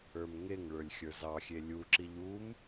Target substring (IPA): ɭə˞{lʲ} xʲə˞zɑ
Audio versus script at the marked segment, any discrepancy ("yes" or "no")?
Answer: no